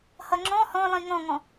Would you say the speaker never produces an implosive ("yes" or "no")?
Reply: yes